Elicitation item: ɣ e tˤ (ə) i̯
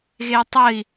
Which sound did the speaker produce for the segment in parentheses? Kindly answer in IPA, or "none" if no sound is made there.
ə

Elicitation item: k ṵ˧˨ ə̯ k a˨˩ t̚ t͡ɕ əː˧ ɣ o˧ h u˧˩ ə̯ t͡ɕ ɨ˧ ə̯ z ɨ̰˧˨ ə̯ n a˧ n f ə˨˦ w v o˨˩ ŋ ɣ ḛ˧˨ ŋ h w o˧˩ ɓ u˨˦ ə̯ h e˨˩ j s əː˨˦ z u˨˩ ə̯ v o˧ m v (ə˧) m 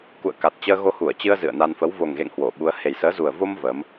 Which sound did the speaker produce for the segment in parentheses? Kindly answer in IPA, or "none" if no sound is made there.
ə˨˦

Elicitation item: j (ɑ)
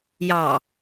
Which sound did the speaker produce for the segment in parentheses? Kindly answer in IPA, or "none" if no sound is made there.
ɑ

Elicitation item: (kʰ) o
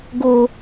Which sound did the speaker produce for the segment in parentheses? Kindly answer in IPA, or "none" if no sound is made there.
ɡ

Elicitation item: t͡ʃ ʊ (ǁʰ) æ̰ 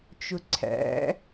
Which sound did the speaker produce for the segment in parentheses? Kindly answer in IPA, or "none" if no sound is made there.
ǀʰ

